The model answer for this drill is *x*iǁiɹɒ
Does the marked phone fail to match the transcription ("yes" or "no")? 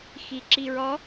no